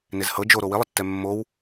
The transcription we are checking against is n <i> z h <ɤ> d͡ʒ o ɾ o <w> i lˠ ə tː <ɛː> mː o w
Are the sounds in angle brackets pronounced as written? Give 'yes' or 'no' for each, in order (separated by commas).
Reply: no, yes, yes, no